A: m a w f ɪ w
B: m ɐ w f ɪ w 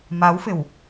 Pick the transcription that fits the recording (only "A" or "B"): A